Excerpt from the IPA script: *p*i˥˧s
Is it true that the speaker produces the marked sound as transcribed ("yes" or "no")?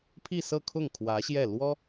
no